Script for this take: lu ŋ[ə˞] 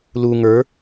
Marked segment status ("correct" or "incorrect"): correct